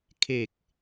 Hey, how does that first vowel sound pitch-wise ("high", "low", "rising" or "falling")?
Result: low